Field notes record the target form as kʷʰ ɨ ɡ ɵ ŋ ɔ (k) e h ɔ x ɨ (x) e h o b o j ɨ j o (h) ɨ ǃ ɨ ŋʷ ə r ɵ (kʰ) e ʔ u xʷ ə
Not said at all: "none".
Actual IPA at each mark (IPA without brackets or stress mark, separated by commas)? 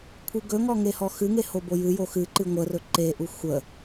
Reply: ŋ, ŋ, x, ǃ